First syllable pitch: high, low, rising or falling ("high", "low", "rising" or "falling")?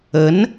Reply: rising